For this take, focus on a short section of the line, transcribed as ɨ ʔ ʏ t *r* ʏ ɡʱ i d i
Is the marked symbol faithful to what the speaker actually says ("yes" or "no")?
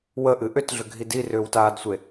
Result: no